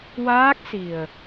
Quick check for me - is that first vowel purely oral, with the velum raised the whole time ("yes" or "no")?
yes